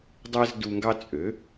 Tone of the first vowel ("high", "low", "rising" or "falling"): high